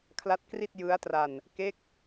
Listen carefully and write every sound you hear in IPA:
kʰla˦˥t̚kri˥˩t̚ jɯ˦˥a̯tra˧n | ke˦˥k̚

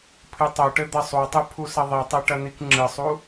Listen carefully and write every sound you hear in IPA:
pʰɨtˤoʈɘ d̪ɐsˤutˤɨ pʰusɐðˤitˤe ʈɐnikŋ͡ǁɨsˤu

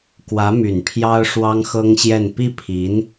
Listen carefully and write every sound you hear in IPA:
kwä˧˥my˨˩n pʰjɑ˥ʊ̯ ʂwɑ˥ŋxɤ˥ŋɕjɛ˥˧n pi˥˩pʰi˧˥n

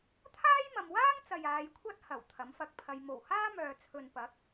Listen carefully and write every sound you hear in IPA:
t̪ʰaː˥jmɐ˨m waː˥ŋt͡sɐ˨j aː˨˧jkʷʰɐ˥t̚ hɐ˨˩w t̪ʰɐ˨˥mfɐ˧k̚pʰɐ˧j mo˨˩whaː˥ mœː˨t͡sʰɵ˨npɐ˨˥k̚

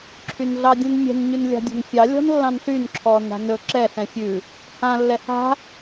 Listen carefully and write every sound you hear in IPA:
ǁʰynɮɑdʲɛ̃nmʲɛ̤n ɲʉnlʲa̤dʲɔ̤nfʲɑ lʲɔ̤nlːɑ̃nɬyn ǁʰɔːna̤nɵ ǁɛ ɬɛ̃fʲʉ | hã lːɛha̤

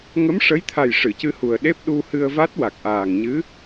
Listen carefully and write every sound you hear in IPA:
ŋə˧˥mʂə˧˥j t̪ʰa˨˩j ʂɨ˨˩˨cɨ˧hu˨˩ə̯ɗe˦˥p̚ ɗu˧hɨ˧ə̯va˦˥t̚ wa˨˩k̚ʔaː˨˩ŋɲɨ˧˥

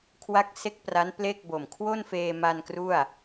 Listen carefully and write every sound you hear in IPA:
kʰwa˦˥k̚se˦˥k̚ pra˦˥n ple˥˩k̚bo˨˩m kʰwo˥˩nfeː˧ma˧n kru˥˩a̯

